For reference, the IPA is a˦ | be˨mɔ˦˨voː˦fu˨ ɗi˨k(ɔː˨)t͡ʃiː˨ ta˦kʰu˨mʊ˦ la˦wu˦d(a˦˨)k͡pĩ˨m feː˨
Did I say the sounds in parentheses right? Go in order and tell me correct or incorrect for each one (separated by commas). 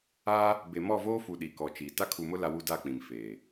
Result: incorrect, correct